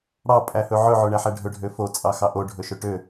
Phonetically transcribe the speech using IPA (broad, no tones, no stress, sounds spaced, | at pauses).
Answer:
ɽ ɑ pʼ æ h ɵ ʕ ɵ ʕ o ɳ æ ħ æ ɖʱ ɵ ɖʱ ø f o t͡sʼ ɑ x ɑ ʔ o ɖʱ ɵ ʃ ɵ ʈ ø